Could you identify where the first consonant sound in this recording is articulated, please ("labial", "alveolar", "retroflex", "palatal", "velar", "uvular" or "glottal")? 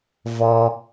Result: labial